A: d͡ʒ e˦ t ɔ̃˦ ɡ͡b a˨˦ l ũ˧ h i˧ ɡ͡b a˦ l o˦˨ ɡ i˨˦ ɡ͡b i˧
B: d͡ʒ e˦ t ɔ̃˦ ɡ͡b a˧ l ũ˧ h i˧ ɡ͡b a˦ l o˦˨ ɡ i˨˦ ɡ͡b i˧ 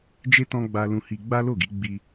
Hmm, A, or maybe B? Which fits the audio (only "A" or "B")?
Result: B